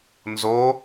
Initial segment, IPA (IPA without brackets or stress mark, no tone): n